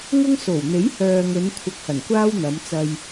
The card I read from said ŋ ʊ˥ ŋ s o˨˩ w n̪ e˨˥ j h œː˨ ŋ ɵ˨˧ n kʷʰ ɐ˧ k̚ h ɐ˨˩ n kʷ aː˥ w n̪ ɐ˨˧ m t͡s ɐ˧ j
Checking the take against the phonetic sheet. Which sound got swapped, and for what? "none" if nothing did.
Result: none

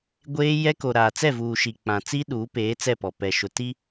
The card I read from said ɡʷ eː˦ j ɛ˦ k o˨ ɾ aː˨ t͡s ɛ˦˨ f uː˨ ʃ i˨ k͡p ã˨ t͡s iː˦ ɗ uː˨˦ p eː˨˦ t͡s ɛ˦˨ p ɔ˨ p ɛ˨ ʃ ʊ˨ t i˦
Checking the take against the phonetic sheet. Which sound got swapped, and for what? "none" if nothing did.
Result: f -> v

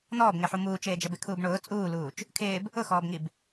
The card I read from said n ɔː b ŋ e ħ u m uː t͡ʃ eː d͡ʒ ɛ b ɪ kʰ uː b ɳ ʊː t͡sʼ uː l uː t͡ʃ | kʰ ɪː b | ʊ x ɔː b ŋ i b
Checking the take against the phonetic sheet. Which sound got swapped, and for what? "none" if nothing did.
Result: none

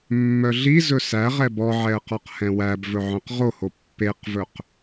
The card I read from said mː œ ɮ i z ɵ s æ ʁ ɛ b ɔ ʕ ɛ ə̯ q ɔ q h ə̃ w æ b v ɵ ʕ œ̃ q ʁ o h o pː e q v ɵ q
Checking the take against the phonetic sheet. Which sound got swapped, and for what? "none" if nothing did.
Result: ə̃ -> ɛ̃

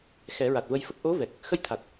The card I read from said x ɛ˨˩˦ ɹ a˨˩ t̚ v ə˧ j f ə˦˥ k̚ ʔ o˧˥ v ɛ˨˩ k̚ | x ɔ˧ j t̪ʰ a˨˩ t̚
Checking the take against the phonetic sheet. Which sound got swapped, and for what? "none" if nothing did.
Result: ɔ˧ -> ə˧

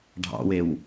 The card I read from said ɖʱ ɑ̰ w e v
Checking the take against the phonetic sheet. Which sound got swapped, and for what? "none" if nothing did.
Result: v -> w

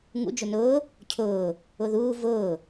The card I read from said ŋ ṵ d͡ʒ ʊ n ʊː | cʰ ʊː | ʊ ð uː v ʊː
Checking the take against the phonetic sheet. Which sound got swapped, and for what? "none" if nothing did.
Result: none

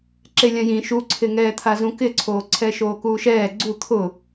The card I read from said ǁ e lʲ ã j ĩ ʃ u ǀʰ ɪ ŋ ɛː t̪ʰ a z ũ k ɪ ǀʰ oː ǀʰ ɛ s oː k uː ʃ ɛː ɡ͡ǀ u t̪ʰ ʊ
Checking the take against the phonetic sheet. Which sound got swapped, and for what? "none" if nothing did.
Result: s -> ʃ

